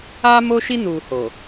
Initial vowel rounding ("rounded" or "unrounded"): unrounded